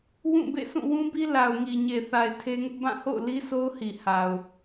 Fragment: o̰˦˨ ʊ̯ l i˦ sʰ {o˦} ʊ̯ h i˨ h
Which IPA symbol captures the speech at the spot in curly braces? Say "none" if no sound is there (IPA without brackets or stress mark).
o˦